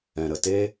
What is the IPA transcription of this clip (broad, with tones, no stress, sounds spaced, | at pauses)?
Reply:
ɛ̃˨ ɾ ə˨ t e˦